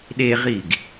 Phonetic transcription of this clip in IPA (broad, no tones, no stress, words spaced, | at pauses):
ɗeʁiɡ